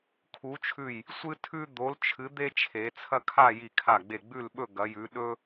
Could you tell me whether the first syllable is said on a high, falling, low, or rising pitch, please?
rising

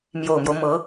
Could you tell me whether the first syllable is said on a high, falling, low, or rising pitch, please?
low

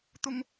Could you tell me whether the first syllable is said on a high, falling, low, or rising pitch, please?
high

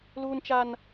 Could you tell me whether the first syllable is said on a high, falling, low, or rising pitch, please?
high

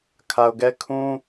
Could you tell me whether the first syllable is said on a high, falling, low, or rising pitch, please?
low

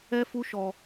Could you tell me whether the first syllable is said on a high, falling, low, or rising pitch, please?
high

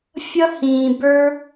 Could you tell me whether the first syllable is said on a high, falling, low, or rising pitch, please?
high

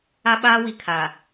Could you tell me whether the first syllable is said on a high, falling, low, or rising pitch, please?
high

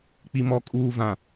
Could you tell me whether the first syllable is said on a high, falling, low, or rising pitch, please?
low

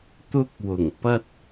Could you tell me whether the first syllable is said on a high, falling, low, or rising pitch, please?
high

